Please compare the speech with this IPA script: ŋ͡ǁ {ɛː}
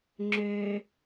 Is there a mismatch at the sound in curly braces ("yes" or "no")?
yes